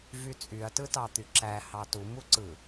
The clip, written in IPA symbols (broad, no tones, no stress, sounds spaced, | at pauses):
v y t͡sʼ y ɐ̯ t ɯ t ɑ t̪ y ǁ æ h ɑ t u m u ǀ ɯ